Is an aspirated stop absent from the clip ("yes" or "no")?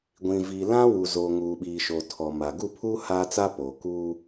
no